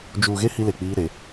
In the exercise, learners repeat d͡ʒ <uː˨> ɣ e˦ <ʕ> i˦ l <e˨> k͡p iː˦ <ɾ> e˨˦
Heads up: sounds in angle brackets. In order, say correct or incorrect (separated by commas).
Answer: correct, incorrect, correct, correct